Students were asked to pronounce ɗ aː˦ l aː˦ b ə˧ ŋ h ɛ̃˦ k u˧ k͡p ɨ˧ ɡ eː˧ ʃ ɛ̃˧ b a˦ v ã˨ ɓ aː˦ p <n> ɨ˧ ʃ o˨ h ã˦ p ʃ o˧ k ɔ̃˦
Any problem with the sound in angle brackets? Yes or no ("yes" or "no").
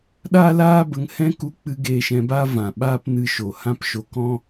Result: no